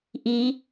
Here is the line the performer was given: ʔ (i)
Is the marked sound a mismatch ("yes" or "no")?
no